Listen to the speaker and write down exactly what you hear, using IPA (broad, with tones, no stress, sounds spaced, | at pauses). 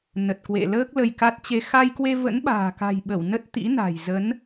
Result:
n ə˨˩ t̚ k w ḛ˧˨ l əː˦˥ k̚ l ə˧ j k a˦˥ t̚ t͡ɕ e˧ x a˧ j k w e˧ v ə̰˧˥ n ɓ a̤ː˨˩ k a̤˨˩ j ɓ ə˧˩ w n ə˦˥ t̚ t̪ ḭ˧˥ n a̤˨˩ j z ə˨˦ n